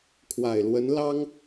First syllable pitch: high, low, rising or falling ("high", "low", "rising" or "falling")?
low